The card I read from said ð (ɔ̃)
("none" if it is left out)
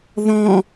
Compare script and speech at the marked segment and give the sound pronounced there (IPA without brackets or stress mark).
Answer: ɔ̃